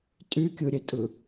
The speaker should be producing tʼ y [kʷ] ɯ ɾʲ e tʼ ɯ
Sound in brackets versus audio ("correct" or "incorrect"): incorrect